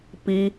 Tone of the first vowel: high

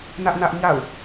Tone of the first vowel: high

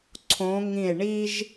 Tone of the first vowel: rising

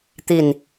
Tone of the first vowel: falling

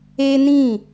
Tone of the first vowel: high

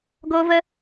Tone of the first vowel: high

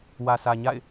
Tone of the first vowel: low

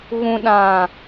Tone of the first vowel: low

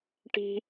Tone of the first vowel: high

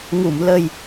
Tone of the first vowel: low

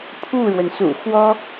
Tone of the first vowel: falling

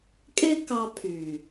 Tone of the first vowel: high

